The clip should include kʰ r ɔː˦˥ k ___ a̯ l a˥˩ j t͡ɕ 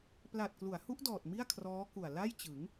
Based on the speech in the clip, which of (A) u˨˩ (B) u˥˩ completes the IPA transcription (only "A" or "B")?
A